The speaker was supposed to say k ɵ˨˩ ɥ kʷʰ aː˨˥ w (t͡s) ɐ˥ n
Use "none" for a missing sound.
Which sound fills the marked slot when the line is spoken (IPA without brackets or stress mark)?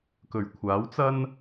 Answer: t͡s